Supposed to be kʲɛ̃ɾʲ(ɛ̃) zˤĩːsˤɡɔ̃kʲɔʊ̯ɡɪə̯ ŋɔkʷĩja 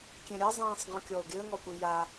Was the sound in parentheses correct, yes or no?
no